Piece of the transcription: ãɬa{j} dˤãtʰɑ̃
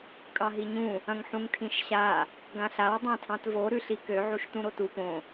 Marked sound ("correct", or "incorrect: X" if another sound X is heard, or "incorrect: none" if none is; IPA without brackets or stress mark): incorrect: w